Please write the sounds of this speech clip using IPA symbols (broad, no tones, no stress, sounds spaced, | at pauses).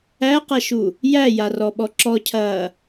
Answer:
æ q ɐ ʃ u | j æ j a r ɔ ɓ ɔ ǁ ɔ cʰ ɐː